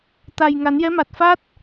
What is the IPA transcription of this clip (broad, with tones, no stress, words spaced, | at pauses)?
t̪a˨˩jŋa˨˩˦njɛ˧˥ma˨˩t̚ fa˦˥t̚